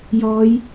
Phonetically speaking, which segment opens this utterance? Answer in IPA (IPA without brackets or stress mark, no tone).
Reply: j